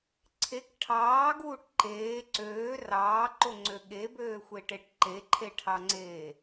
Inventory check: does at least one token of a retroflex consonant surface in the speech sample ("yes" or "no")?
yes